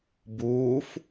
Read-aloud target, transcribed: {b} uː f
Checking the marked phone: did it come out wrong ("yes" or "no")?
no